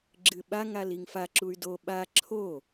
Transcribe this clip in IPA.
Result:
ɡ͡ǁ ɨ ɓ a ŋ a l i ŋ f a ǁ u y̯ d o ɓ a ǁʰ o

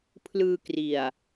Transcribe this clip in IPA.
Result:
pʰ l ɯː˧ k r i˨˩ a̯

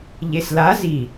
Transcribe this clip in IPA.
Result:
ʎ e s l a z i

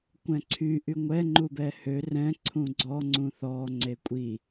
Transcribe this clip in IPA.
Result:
kʷ ɛ̃ ǀʰ y ʔ y ŋʷ ɛ ŋ͡ǃ u b ɛ h ø r ɛ̃ ǀʰ ũ ɡ͡ǀ ɔ ŋ͡ǀ ũ θ ɔ ŋ͡ǀ e kʷʼ i

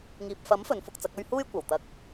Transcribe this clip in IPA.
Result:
ŋ iː˨ p̚ f ɐ˨˥ m f ɵ˨˧ n f ʊ˧ k̚ t͡s ɐ˨˥ k̚ ɵ˥ ɥ h uː˥ j kʷ ɐ˨˩ w t̪ ɐ˧ k̚

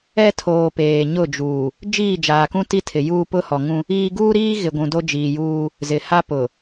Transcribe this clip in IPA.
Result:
ɛ˦ tʰ oː˨ p eː˨ ɲ ʊ˦˨ d͡ʒ uː˨ | d͡ʒ iː˦˨ d͡ʒ aː˨ k ũ˦ t i˦ tʰ ɪ˨ j uː˦ p ʊ˦ h ɔ˨ ŋ ũ˦ | iː˦ ɡ uː˦ ɾ iː˦ ɣ ɪ˨ ɡʷ ũ˨ d o˦ d͡ʒ iː˨ j uː˦ | z ɪ˨ h a˦ p ʊ˨

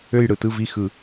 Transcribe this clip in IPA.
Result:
ø˥˨ j ɽ ɯ˩˧ t ɯ˥˨ v i˥˨ x ɯ˧˩˧

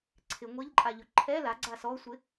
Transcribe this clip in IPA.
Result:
ǀʰ ɪ ŋʷ e ʎ ǃʼ a ʎ ʊ ǃʰ ɛ l a ɡ͡ǀ a s ɔ sʷ ɪ

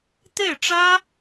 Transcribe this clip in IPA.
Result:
t̪ e˥˩ ɪ̯ ʈ͡ʂ ä˥

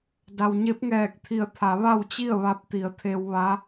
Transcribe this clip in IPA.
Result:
d a˩ w ɲ e˧˥ p̚ ŋ ɛː˧˩ k̚ t̪ʰ i˧˩ ə̯ t̪ʰ a˩˧ ʋ a˥˨ w t͡ɕ i˥˨ ə̯ ʋ a˧˥ p̚ t̪ i˩˧ ə̯ t̪ʰ e˧ w ʋ a˧˥

